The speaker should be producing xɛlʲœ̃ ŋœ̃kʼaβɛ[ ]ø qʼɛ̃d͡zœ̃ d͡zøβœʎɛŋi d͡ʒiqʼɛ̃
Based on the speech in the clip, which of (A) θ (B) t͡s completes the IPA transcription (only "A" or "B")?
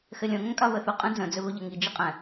A